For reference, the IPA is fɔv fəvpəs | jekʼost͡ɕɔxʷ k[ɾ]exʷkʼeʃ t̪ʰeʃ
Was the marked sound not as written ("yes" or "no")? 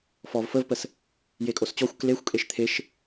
yes